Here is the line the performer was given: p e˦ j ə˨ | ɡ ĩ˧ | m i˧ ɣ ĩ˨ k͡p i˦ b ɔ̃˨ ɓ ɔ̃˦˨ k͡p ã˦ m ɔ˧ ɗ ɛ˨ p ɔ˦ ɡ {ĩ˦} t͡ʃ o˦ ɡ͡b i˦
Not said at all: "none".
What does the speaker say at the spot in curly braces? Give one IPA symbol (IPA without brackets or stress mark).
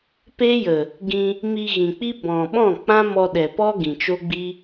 ĩ˨